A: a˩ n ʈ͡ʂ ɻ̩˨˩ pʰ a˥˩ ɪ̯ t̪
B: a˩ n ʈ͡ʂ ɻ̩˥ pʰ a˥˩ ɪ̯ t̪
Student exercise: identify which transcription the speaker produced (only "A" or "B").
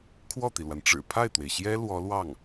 A